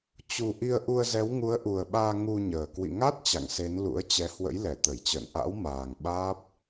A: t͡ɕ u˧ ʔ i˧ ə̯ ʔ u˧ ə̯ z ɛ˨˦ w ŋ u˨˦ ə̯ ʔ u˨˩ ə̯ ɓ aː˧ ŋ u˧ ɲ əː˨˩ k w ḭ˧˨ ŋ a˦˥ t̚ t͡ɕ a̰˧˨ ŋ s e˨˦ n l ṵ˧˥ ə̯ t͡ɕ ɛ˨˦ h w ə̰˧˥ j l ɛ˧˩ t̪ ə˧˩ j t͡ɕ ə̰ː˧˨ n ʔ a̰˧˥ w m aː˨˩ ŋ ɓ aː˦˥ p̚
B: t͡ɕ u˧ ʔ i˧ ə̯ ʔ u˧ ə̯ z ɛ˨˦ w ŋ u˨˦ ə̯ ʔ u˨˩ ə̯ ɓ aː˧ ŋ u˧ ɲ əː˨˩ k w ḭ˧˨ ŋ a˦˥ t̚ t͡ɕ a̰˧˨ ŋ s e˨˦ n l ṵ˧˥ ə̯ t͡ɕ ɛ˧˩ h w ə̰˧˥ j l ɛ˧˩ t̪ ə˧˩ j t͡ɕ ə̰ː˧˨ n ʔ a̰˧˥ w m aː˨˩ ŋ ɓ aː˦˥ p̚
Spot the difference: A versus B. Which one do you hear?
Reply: A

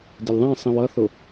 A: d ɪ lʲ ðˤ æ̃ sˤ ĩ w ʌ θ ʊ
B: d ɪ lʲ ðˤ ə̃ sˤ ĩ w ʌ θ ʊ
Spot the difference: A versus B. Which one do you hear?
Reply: A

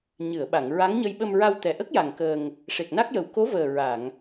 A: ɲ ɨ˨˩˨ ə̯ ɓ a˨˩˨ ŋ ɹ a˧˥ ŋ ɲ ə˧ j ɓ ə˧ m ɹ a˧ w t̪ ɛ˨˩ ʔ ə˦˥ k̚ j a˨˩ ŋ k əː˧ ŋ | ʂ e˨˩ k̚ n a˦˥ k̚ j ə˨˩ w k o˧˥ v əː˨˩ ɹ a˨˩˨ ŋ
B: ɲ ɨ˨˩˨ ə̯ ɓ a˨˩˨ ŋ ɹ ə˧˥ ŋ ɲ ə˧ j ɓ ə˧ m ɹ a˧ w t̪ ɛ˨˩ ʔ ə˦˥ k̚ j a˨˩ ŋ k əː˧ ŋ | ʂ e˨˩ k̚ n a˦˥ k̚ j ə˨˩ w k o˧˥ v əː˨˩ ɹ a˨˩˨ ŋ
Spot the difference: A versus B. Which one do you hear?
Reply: A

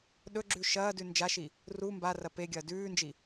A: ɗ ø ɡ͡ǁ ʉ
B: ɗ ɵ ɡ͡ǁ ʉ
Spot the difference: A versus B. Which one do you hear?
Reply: B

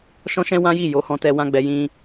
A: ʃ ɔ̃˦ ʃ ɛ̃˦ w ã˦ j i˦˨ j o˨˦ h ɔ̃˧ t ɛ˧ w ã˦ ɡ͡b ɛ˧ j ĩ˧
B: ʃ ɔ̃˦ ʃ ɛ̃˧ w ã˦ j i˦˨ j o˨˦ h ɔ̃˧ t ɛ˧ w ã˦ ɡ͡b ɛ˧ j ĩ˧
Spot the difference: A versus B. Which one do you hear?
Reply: A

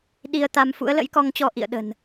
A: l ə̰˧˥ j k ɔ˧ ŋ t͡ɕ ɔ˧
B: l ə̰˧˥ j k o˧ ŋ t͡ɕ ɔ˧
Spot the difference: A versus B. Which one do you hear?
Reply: A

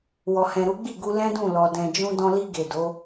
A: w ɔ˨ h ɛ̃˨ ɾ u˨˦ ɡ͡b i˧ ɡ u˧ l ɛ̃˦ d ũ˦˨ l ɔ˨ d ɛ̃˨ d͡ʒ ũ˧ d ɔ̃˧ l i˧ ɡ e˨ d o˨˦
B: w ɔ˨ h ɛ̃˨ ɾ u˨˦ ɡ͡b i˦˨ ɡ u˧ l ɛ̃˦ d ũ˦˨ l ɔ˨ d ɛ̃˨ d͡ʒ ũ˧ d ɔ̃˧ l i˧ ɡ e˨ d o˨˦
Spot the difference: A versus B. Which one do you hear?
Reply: B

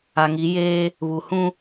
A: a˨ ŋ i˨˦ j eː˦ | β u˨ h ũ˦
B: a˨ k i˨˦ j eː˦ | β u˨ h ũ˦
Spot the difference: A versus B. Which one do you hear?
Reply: A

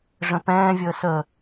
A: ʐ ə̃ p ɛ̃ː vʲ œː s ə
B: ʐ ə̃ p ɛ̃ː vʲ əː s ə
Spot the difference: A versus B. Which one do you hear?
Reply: B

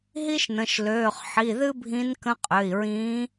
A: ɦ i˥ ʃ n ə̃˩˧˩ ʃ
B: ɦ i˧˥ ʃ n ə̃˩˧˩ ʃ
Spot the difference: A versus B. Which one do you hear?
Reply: A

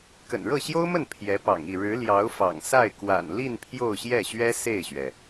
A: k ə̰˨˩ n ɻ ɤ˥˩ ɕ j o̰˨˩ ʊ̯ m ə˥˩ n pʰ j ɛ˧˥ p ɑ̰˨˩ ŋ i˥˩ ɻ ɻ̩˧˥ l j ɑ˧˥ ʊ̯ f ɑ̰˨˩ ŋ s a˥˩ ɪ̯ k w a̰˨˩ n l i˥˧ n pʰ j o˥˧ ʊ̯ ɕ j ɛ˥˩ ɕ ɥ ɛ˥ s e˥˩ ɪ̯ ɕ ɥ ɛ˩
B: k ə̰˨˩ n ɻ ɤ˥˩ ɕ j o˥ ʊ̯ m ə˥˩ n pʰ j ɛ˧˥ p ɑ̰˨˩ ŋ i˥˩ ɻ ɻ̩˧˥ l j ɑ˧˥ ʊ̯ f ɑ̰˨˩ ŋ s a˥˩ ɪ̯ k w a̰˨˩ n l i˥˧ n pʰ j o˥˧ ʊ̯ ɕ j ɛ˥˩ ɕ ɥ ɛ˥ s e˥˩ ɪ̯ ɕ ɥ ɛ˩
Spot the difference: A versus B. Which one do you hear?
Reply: B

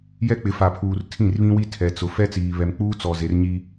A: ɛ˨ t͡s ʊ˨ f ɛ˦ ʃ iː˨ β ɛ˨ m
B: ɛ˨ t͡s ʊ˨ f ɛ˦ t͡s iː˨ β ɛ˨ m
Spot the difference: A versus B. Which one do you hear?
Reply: B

